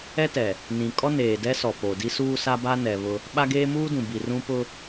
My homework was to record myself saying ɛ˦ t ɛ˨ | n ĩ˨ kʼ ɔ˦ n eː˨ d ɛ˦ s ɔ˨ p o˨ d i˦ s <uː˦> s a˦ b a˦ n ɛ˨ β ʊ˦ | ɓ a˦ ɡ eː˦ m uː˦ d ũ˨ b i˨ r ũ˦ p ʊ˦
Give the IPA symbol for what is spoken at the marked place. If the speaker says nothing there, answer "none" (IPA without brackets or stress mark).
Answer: uː˦